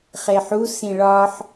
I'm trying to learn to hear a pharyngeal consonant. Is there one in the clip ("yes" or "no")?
yes